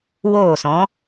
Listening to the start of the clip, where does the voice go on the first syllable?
falling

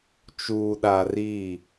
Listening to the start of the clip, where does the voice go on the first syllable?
low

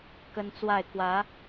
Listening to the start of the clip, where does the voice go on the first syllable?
high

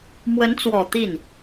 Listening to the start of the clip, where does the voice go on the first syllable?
rising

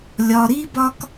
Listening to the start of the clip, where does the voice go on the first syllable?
low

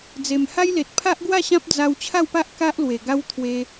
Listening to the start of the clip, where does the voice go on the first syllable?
low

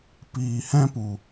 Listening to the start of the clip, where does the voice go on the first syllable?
low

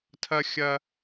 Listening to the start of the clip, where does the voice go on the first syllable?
low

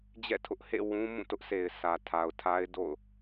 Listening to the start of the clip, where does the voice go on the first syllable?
falling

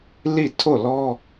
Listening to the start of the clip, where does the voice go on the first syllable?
falling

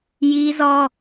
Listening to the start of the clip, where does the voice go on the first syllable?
high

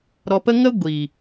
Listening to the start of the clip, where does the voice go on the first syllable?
low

